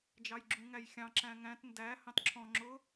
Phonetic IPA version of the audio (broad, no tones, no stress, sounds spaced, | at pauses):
d͡ʒ ɑ j ɡ͡ǁ ũ ŋ æ j xʲ ɑ̃ ǁ æ̃ ŋ æ̃ t n d æ h ɑ̃ t ǁʰ ɔ̃ ŋ͡ǁ ʊ